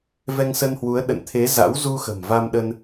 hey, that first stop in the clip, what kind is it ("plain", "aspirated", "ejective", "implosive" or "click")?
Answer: implosive